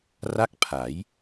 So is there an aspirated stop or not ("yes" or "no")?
yes